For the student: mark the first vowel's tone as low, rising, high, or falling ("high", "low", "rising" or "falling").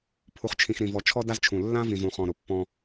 low